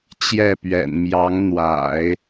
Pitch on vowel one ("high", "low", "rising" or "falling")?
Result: falling